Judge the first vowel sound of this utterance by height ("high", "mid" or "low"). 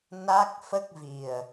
low